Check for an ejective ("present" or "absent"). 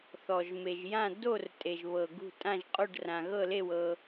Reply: present